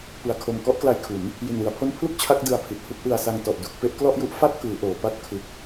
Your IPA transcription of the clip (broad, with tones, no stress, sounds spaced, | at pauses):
p ɯ˩˦ a̯ kʰ o˨˩ m k ɔ˥˩ ʔ k l a˧ j kʰ u˩˦ n | j i˨˩ n w ɯ˩˦ a̯ pʰ o˦˥ n pʰ l u˥˩ k̚ t͡ɕʰ a˦˥ k̚ d ɯ˧ a̯ pʰ i˨˩ t̚ h u˥˩ k̚ ʔ ɯ˧ a̯ s a˧ ŋ t ɔ˨˩ ʔ d u˨˩ k̚ p e˥˩ ʔ k l ɔ˥˩ ʔ j u˦˥ ʔ f a˥˩ t̚ k ɯː˩˦ ʔ oː˩˦ p a˦˥ t̚ kʰ ɯ˨˩ k̚